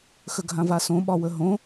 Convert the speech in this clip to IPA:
xəɡʱãvasõ ɓɒwəɦõ

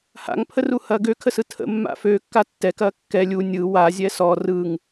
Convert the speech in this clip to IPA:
ha̰ŋpʰəruhɐː ɡøkʰəsɯ tʰə̰mːa̰ føkːa tːɛkɐː kːɛ lʲu nʲɯ wazʲɛ sɔ rɯŋ

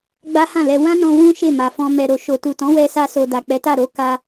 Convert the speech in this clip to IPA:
ɡ͡ba˦hã˦˨lɛ˧ wã˦nɔ̃˧ wũ˦ ʃe˦˨ma˨fɔ̃˧ mɛ˨ɾo˨ ʃo˨tu˨tɔ̃˨˦ wɛ˧sa˧so˨ da˨k͡pɛ˨˦ta˦˨ɾo˨˦ ka˧

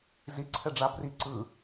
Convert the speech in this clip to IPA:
ziǀʰɛɖ͡ʐa bri ǀɯ

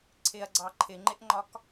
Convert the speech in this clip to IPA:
ǀʰɪɐ̯ɡ͡ǀɑ ǃʰɪŋ͡ǃɪʔŋ͡ǃɒk

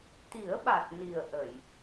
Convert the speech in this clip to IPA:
t̪i˨˩˦ə̯ɓa˨˩t̚ ni˨˩ə̯ʔə˨˩˨j

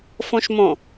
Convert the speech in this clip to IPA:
fõʃmõ

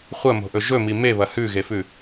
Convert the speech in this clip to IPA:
χʷɐmo̤ʔɵ ʒɵmi meβɐ hʉɣefʉ

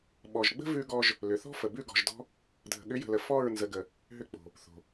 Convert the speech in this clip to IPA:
ɓɔ˨ʒɡ͡bə̤˦ vʉ˦ɡɔ˦ʒ | lʏ˨θɔ̤˦fə˨bʉ˦˨ ɡɔ̤˨ʒdɔ̤˧ | dʱə̤˨ɠʏ˨˦jə̤˨lə˨ fɔ˦˨ɹ nzə˨ɡə˨ | ɦʏ˧k͡po̤˨ | θo̤˨

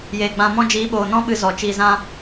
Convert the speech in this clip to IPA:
jeː˨ɡ͡bã˧mɔ̃˦ d͡ʒiː˨˦ɓoː˨nɔ̃˦ɓɨ˧ zɔ˨ t͡ʃiː˧zã˦

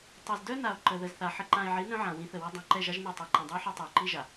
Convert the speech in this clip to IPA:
tˤɛ˨zdœ˦na˨o̯ ǃə˨ ðə˨zθa˨ ħə˨ǃã˨e̯ʕi˨˦ nœ̃˦ʕã˨wĩ˨˦θə˨ wʌ˦ dˤɛ̃˨ǃɛ˦˨ʒa˦ʒnœ˦˨ tˤa˨ǃã˨dˤœ˦o̯ħa˦ tˤə˞˨ǃi˦ʒa˨

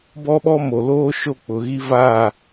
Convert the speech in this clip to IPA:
bɔ˦ɓɔ˦mo˨loː˦ ʃo˦k͡pʊ˨ɣi˦ vaː˦˨

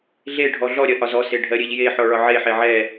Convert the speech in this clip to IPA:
ɮe ɖʱɔɮɔɾʲɜ ʔɒzɔse ɖʱɜɾʲeʎjeħɔ ɭɒʕeħe ʕɛ

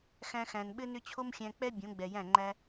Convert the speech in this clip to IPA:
xæ̃˧ xæ̃˨nɓɘ˧nʏ˧ t͡ɕʰo˦mxʲæ̃˧k͡pɛ˦ bʲõ˨˦ɡ͡bɛ˨jæ̃˦˨ ŋ͡ǃæ˧

